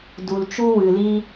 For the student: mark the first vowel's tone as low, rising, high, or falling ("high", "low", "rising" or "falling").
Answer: low